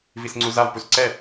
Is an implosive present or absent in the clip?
absent